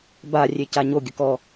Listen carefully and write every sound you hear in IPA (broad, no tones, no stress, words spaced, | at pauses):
ba rʲecaɲo ɡʲəkɔ